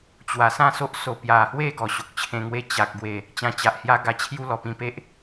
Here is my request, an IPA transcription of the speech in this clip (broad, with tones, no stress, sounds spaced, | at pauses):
t͡ɕ w a˨˩ s ã˥˧ s o˦ ʔ s o˨˩ p j a˨˩ h w e˥˧ ɡ ɔ˨˩ ɕ o˨ k̚ t͡ɕʰ ẽ˧ ŋ w e˦ t͡ɕ a˨ k̚ ɡ w e˨˩ | t͡ɕ ã˧ t͡ɕ a˨ ʔ h j a˦ ɡ a˧ t͡ɕʰ j u˦ l ɔ˨˩ p ĩ˧ p e˦ ʔ